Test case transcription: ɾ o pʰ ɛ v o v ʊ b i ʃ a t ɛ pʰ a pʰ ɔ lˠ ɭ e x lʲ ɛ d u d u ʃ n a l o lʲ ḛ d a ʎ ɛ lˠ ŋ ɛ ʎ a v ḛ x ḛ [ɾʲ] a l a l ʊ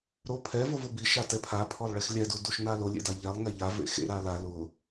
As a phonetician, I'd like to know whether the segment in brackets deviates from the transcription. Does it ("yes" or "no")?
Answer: yes